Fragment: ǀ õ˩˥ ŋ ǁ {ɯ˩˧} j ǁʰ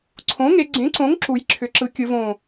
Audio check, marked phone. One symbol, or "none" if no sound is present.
u˩˧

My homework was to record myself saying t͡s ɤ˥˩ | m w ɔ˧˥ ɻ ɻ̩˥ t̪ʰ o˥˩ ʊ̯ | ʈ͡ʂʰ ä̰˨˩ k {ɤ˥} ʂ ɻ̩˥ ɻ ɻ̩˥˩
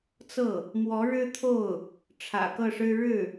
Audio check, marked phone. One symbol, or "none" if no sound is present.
ɤ˥˩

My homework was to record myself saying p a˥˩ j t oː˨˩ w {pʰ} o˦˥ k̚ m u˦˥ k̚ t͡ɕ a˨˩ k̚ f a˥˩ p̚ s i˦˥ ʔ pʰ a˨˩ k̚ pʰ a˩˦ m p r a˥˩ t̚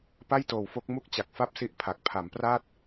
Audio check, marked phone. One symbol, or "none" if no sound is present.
f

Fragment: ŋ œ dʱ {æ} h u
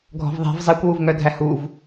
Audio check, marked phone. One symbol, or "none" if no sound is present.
æ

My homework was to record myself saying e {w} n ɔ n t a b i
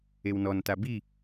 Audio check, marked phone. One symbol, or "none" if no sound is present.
w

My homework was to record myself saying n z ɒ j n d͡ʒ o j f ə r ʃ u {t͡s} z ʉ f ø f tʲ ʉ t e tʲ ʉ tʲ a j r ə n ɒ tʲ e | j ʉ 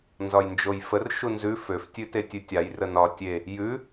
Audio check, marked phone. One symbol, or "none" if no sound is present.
n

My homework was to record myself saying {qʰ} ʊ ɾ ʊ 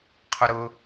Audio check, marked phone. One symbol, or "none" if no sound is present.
qʰ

